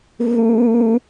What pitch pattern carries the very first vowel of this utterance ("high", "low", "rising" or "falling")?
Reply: high